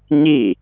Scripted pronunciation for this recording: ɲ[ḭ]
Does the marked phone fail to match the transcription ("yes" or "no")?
yes